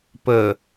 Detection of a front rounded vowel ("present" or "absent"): absent